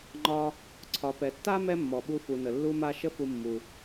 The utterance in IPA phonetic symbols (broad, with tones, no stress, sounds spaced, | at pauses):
ŋ͡ǃ ɒ˧ | ǀʰ ɒ˩ p ɛ˩ tː a˥ m ɛ˥ mː ɔ˩ ɓ u˧ f u˩ n ə˩ lː u˧ m a˧ ʃ ə˥ f u˧ mː u˩